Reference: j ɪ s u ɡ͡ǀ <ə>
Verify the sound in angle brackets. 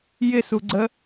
correct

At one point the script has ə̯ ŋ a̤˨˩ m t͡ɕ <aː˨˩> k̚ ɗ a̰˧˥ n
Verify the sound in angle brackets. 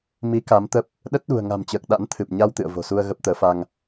incorrect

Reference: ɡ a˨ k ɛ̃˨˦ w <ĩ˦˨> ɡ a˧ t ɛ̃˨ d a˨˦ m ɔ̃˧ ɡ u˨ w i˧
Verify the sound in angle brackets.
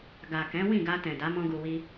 correct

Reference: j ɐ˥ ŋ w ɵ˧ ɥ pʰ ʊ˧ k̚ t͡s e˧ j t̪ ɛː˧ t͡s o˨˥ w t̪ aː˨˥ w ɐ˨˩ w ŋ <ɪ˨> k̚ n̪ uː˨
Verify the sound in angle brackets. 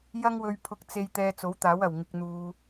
correct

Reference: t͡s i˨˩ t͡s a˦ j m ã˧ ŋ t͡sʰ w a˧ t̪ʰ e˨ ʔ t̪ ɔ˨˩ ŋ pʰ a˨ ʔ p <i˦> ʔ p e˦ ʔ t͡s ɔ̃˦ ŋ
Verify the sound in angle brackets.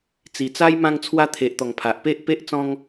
incorrect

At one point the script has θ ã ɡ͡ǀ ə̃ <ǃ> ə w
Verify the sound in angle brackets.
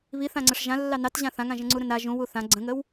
incorrect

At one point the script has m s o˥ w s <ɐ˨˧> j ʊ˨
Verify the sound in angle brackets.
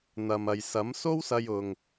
incorrect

